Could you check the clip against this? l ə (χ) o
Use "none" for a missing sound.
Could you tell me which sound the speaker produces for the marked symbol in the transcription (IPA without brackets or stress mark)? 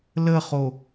χ